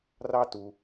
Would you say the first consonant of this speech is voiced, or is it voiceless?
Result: voiced